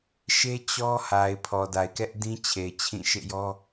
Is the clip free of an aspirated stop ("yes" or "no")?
no